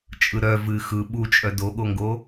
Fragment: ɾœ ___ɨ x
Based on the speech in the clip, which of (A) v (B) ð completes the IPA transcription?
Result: A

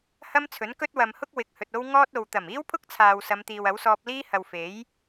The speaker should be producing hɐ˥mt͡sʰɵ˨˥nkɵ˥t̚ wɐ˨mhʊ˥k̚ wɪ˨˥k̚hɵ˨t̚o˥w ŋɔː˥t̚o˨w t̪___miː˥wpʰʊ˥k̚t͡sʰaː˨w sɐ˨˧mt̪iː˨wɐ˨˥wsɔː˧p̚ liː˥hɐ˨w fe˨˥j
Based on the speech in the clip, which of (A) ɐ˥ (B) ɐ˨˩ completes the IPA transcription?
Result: B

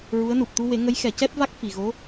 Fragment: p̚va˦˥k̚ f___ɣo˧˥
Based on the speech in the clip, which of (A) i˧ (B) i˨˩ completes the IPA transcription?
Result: B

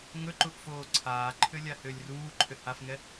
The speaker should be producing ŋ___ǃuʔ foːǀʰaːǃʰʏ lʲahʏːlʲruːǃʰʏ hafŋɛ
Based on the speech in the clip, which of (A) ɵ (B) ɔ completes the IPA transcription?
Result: A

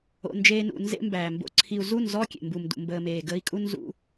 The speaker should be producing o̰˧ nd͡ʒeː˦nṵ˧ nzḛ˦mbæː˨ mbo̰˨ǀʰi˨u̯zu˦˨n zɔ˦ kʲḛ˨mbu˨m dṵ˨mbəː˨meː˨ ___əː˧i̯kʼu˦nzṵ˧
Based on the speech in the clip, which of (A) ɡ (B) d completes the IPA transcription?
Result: A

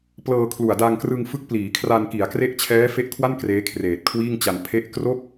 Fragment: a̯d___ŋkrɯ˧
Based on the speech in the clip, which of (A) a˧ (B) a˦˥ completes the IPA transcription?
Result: A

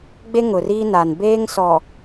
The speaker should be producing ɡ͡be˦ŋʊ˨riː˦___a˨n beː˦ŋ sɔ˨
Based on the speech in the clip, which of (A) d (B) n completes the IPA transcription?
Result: B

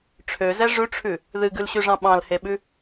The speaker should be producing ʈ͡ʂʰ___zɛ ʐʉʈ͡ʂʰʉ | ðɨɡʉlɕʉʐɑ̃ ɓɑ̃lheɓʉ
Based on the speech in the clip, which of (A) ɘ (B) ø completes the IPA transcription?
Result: B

